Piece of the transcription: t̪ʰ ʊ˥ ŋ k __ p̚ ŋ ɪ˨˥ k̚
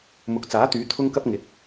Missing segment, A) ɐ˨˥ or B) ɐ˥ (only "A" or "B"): B